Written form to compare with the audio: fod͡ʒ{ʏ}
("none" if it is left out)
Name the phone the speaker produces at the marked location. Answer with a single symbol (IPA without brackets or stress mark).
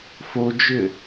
ʏ